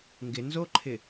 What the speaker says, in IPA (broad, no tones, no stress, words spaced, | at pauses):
ŋɡɪ nzoǃʰɪ